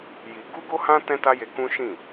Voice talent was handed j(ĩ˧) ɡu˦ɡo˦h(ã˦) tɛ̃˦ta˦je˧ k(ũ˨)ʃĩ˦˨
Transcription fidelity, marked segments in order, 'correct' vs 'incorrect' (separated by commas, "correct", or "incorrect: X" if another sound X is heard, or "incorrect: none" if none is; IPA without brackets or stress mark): incorrect: i˧, correct, incorrect: ũ˦